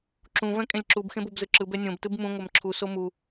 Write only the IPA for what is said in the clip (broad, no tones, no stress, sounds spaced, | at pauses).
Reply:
ǁ ũ v ɛ̃ kʼ ẽ lʲ ǁ u b x ẽ b o b z ɯ ǁ ɯ b ɛ nʲ õ b t ɯ b m ũ ŋʷ ɛ m ǁʰ u s o m u